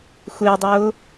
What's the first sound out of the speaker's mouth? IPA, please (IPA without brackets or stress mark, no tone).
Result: xʷ